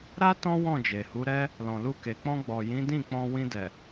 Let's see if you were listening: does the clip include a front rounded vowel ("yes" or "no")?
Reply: no